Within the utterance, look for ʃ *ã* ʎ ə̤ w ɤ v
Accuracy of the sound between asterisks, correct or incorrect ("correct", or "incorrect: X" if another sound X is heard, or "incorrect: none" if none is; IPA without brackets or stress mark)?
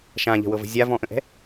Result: correct